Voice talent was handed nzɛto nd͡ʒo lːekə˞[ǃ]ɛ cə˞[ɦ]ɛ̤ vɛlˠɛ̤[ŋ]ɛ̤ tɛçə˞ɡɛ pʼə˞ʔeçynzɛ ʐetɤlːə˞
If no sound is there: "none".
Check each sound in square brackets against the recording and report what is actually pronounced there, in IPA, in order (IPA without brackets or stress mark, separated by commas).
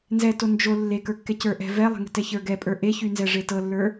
kː, ʔ, ŋ